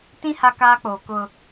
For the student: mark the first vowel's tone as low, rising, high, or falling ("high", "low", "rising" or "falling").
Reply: high